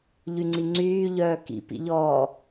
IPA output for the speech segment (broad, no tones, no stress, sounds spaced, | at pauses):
ʎ y ŋ͡ǀ i ŋ͡ǀ yː ʎ œː k ḭ p ḭ ʎ ɔː